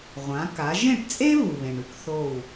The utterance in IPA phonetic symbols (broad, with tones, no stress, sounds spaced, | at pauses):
ʁʷ ã˩˥ k a˩˥ ʒ ẽ˥˩ ʈ t͡sʼ e˥ β u˩ β ẽ˩ ɳ ʉ˥ k θ o˥˩ w